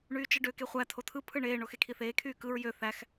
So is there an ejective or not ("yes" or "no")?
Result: no